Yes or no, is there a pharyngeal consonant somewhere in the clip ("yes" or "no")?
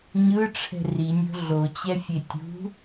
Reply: no